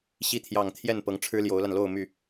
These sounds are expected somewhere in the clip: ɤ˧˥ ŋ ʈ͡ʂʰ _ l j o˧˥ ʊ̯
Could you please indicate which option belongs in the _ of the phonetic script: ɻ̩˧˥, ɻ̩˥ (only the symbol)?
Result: ɻ̩˥